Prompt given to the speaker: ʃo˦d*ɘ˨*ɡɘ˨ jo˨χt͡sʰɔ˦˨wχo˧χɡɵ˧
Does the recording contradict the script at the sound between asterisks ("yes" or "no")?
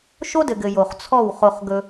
no